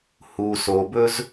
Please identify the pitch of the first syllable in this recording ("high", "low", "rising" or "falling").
low